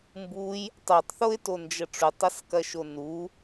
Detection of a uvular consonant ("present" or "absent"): absent